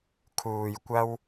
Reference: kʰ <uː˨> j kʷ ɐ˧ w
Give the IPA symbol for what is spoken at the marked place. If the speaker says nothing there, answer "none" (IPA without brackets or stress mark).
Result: uː˨